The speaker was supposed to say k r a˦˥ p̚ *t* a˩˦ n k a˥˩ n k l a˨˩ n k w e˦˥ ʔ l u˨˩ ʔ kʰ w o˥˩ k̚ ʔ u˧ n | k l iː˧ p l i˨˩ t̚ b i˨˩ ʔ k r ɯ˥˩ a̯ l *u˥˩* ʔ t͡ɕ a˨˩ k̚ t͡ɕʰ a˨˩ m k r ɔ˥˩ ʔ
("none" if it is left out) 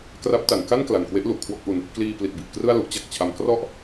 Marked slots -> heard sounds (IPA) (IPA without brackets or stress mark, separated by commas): t, u˦˥